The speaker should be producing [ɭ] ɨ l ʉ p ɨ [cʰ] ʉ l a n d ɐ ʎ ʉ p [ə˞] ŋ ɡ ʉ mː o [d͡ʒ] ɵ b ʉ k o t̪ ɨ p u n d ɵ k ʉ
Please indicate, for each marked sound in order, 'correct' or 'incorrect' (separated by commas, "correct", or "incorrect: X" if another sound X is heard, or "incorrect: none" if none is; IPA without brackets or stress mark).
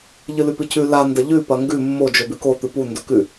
incorrect: ʎ, correct, incorrect: ɐ, correct